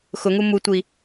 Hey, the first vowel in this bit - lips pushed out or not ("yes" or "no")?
yes